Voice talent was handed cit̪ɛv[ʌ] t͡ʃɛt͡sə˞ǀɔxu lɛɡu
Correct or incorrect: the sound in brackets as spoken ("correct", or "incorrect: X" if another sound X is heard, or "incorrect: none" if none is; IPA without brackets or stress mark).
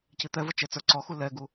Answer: correct